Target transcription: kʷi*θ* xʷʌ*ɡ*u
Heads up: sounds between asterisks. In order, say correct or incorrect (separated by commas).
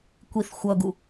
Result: correct, correct